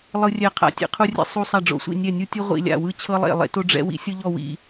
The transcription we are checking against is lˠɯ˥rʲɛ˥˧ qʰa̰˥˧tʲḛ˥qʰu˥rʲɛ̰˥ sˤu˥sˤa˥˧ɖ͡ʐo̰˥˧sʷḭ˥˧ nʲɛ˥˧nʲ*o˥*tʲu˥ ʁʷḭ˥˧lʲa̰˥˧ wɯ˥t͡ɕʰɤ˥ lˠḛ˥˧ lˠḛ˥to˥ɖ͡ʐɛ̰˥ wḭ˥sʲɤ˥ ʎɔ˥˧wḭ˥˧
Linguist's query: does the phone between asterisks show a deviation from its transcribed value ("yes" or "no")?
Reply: yes